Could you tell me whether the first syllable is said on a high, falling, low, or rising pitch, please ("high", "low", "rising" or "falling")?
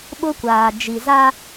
high